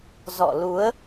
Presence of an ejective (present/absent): absent